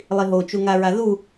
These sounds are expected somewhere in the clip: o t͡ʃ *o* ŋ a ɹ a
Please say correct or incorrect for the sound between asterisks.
incorrect